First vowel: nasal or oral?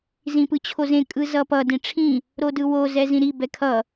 nasal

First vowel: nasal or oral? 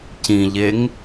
nasal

